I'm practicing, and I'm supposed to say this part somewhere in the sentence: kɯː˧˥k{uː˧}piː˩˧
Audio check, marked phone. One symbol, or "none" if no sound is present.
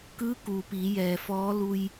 uː˩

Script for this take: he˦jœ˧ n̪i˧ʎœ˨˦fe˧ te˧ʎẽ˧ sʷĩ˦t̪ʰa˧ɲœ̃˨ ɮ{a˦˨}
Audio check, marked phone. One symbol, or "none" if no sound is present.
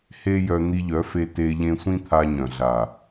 a˨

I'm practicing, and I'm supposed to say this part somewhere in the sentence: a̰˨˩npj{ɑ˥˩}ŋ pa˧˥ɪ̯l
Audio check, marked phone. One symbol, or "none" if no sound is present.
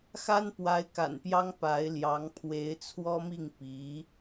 ɑ˥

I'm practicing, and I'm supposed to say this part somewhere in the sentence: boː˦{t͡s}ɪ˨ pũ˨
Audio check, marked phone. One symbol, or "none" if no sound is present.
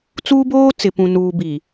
t͡s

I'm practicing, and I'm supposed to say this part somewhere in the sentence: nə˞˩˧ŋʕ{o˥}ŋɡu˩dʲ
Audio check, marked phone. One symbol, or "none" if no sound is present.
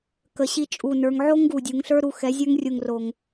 o˥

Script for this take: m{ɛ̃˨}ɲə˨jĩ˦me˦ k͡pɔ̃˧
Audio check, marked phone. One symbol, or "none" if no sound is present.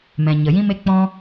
ɛ̃˨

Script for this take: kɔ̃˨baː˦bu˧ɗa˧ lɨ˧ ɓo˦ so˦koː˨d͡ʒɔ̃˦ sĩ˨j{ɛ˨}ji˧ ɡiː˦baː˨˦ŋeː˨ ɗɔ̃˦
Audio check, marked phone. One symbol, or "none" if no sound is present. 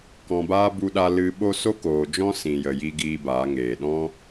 ə˨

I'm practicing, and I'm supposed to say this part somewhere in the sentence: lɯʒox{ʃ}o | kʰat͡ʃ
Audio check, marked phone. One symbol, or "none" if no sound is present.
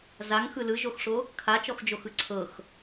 ʂ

